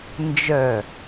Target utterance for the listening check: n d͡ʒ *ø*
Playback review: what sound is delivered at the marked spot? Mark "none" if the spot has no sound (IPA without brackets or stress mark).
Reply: œ